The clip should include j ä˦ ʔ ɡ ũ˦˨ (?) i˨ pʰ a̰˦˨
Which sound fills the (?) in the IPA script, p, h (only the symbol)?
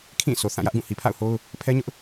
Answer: h